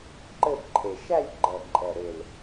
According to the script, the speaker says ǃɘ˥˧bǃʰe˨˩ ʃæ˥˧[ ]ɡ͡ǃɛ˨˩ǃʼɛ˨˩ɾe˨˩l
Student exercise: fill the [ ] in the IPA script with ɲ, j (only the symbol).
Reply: j